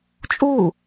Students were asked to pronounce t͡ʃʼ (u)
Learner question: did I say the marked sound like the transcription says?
no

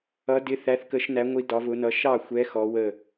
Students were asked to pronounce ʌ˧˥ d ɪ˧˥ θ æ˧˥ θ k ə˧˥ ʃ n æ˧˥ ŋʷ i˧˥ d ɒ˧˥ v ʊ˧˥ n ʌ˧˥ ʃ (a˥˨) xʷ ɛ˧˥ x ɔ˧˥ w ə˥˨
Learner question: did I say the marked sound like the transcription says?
no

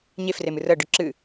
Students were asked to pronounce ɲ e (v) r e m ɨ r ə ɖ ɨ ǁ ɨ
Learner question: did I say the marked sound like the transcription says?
no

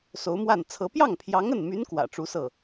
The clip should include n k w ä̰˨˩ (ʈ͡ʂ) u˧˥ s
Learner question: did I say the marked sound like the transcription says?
yes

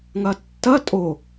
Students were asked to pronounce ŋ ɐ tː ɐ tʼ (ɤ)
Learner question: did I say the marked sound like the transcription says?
no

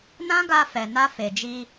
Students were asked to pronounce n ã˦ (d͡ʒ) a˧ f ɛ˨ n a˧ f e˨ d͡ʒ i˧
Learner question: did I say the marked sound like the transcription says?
no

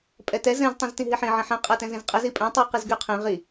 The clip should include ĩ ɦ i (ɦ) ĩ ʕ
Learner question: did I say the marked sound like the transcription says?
no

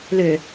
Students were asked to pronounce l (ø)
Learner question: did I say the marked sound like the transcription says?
yes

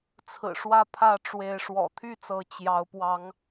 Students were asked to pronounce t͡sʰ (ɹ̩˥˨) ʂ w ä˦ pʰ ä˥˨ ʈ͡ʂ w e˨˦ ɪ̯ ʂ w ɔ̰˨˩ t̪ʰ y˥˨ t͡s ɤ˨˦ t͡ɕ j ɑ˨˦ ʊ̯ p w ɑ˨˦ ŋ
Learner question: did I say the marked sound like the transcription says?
no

